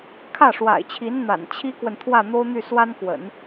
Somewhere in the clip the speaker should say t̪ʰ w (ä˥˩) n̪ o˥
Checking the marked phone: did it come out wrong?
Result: no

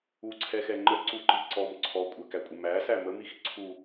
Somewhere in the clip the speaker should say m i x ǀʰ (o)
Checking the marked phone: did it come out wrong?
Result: yes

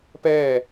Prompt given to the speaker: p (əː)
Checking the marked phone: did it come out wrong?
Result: yes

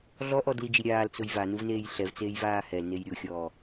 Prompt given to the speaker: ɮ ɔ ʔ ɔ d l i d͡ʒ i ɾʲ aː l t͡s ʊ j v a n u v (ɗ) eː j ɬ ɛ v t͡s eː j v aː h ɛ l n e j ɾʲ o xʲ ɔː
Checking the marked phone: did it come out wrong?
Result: yes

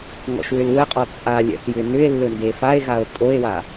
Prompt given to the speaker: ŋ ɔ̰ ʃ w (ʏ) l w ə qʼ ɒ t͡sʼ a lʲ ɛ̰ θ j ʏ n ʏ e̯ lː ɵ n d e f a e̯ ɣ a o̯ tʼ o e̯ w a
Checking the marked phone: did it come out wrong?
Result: no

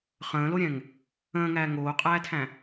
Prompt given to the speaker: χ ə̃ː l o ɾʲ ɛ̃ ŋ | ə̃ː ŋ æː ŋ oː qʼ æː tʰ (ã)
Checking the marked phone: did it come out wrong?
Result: yes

